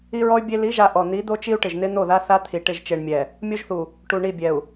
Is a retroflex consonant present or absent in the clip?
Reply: present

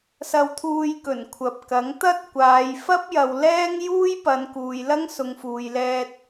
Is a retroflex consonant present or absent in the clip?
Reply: absent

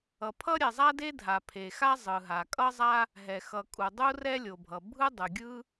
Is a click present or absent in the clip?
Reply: absent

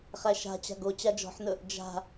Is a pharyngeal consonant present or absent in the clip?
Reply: present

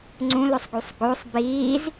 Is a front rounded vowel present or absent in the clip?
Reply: present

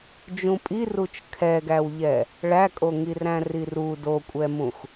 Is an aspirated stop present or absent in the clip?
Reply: present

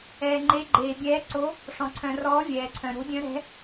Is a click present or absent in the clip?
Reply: present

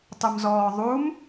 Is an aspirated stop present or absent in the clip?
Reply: absent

